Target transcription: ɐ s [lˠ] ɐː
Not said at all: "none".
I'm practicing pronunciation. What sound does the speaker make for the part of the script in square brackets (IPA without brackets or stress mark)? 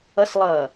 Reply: lˠ